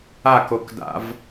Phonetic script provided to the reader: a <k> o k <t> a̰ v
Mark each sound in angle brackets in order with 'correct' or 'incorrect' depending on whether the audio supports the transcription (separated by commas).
correct, incorrect